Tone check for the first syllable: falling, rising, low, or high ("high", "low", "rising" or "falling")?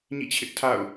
falling